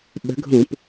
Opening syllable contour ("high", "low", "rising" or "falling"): rising